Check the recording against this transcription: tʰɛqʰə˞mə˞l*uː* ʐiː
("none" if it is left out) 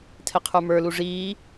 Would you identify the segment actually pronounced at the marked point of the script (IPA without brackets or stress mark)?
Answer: u